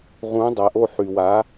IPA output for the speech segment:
ʁ ũ˩˥ dˤ æ˩ ʔ o˧˩ ħ y˩ w a˩˥

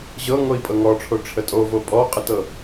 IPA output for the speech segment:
ʑ ɤ ŋ o i̯ pʼ ɤ ŋ ɔ ʈ͡ʂʰ o ʈ͡ʂʰ ə tʼ o v o pʼ ɔ qʼ ə t ɤ

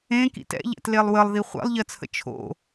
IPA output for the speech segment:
ẽ k ḭ t ɛ̰ ʎ ɛ̰ t l e lˠ w ə lˠ ð i χʷ ɛ̰ lˠ ʎ ɜ t͡sʰ ə̰ t͡ʃʰ o̰

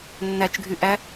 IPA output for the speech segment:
nː æ t͡ʃ ɡʱ y ʔ æ

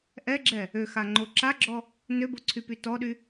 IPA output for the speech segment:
ʔ ɛ ɡ͡ǁ ɛ | ø x a ŋ͡ǃ o ǁ a ɡ͡ǁ ɔ | n ø b o ǀʰ y p y t ɔ ɗ y

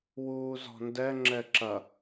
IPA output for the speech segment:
w uː z ɔ̤ n d ɛ ŋ͡ǁ ɛ ǁ ɐ

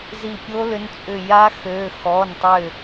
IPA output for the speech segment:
z i˧˩ pʲ o˦˥ l ʏ˨˥ n t͡sʼ ʏ˧˩ j a˦˥ x ø˩˧˩ x ɔ˩˧˩ n tˤ ʏ˧˩

